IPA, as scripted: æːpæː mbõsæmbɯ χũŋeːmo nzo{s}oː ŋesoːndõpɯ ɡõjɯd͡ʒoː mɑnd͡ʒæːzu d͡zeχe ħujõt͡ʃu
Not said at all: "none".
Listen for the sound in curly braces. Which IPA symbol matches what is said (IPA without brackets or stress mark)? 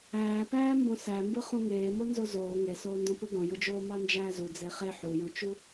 z